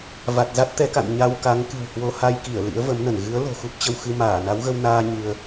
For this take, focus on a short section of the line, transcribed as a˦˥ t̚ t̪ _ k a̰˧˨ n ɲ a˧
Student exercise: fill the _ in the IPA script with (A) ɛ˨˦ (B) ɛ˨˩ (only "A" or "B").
A